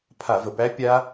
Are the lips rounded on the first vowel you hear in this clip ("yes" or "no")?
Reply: no